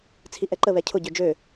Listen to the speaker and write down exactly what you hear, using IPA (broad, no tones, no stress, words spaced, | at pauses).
t͡sʰiʔɛǃə βɛcʰʊ ɟød͡ʒø